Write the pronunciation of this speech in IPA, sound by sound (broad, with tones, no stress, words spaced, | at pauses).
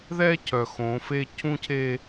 ðɛ˦cʰœ˨ xõ˨˦fe˦ cʰũ˦cʰe˦